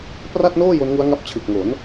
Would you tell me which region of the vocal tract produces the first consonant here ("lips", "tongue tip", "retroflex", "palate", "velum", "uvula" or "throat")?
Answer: lips